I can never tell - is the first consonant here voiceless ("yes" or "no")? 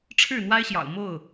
yes